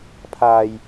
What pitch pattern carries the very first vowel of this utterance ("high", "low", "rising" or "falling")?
low